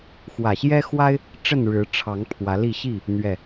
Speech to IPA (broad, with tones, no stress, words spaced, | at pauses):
xwä˨˩ɕjɛ˦xwa˦ɪ̯ | ʈ͡ʂə˥˨nɻɻ̩˨˦ ʈ͡ʂʰɑ˨˦ŋ pʰwä˨˦li˥˨ ɕi˥˨ | n̪ɥɛ˨˩